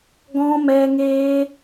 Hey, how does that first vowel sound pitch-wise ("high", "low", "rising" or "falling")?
high